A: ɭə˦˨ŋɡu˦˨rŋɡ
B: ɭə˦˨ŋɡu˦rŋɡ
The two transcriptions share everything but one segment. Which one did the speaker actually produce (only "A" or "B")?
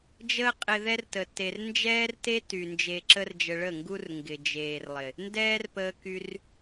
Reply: B